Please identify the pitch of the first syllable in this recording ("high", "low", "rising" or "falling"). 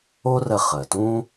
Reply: high